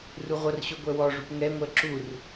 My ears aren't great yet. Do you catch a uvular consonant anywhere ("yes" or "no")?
yes